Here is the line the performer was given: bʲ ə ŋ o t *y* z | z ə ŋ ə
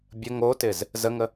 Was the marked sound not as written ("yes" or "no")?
yes